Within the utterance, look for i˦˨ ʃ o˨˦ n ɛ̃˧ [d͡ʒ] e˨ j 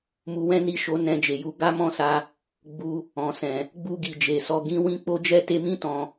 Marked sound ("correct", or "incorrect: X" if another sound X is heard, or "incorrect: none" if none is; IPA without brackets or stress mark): correct